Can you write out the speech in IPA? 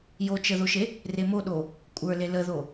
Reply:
jot͡ʃəðoʃe | remoɗo | kʷʼə˞le ləðo

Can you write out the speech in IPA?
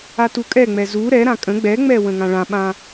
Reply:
atukʼɛŋ͡mɛ zu ɾɛɾã kʼə̃ ɡ͡bɛŋ͡mɛ wə̃ŋãɭãɓã

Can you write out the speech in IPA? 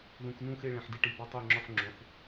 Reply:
ðũ˩˧˩knũ˦˨xe˦˨ ɭẽ˩˧˩ħdi˦˨ʈi˩˧˩bɔ˦˨ tˤo˦˨ŋ͡ǁɔ˦˨ħŋ͡ǁõ˩˧˩ħ

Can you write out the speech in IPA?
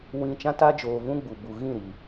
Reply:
wĩ˨ t͡ʃã˦ta˦ d͡ʒoː˨vũ˦ ɡ͡bu˨bu˨ ɣĩ˦˨ɾi˨

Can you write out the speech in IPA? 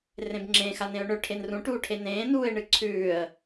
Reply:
rẽbŋ͡ǁẽ xanẽʊ̯ɳɵ ʈʰenrũ ʈuːʈʰenẽː nuːɪ̯ɳɨǀʰʉːə̯

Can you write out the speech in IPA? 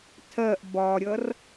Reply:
tʰɜʔ bɒɾʲʌr

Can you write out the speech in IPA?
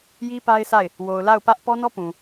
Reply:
ji˦ pa˦ɪ̯sa˦˨ɪ̯ | wo˨ʊ̯la˦˨ʊ̯ pä˦ʔ pɔ˦nɔ˦pũ˨

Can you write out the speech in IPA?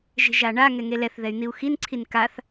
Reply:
ʒe̤ʒaɳa ŋɛŋelɛθ ðɛy̯n̪iu̯xin ǀʰinkaθ

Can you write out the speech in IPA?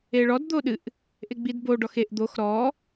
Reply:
eɭɔd d̪oɗɨʔ | ʔeɡ͡bidbo ɖɔxeʔ d̪ox ɾɔ

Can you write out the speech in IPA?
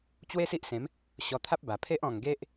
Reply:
t͡ɕwe˦si˦ʔsẽ˨˦m | ɕɔ˧t̪ʰa˦p̚ba˨˩ pʰe˦ʔ ɔ̃˨˩ŋ ɡe˦ʔ

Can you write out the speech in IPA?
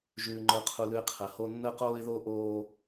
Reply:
ʒʉː˦ŋ͡ǃə˞˦qʰu˦lʉ˦ɪ̯ qʰə˨ho˦ nːəː˦qoː˦ɪ̯ðoː˦ ʔoː˦

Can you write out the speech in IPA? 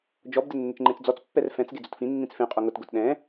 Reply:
d͡ʒɔbdɪ nːɪt͡ʃŋ͡ǃẽt͡sd͡zɔt͡spːɛr fɛ̃t͡s ɡed͡zʊtfĩnːĩt͡s fẽqʼo ŋʊtɡʊt ɗɛ̃

